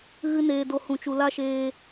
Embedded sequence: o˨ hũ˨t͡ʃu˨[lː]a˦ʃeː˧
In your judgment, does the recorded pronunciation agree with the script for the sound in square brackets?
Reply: no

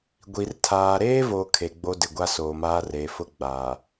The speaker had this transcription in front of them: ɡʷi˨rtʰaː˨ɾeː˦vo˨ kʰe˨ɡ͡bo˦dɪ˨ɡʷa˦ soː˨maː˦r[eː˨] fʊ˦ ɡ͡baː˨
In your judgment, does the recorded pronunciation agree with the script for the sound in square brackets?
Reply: yes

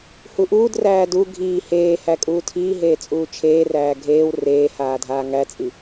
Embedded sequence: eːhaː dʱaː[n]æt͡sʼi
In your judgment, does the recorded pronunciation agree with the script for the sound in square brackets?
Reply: no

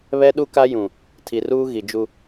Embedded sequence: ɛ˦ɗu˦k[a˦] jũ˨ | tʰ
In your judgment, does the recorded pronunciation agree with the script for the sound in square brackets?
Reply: yes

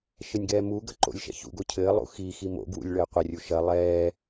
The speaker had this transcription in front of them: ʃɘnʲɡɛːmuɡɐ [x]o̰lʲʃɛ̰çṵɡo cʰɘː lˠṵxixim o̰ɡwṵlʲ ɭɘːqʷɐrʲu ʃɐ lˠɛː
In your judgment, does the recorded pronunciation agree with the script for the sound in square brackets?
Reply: no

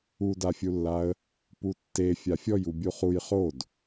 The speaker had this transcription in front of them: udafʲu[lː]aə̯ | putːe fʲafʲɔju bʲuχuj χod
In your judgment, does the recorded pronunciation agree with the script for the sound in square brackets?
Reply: yes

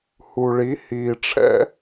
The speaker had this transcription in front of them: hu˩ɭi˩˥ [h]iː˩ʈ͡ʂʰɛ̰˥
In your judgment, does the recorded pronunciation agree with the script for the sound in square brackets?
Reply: yes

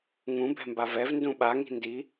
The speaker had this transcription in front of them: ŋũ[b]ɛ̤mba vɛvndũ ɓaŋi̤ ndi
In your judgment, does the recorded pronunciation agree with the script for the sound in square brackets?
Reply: yes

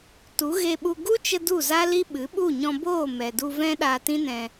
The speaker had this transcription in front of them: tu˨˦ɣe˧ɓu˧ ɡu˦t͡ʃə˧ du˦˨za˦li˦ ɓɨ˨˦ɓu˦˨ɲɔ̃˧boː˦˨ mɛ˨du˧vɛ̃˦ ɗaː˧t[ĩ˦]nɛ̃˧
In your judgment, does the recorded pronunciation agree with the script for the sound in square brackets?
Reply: yes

